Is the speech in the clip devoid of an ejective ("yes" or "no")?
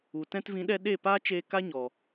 yes